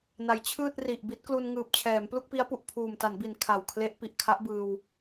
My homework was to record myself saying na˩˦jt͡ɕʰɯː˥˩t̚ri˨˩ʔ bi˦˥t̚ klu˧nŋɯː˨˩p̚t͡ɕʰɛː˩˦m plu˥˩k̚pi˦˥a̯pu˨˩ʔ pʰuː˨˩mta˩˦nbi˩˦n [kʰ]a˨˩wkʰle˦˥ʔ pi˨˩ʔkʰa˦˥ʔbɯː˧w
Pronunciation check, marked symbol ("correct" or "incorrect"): correct